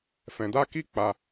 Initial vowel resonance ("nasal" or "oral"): nasal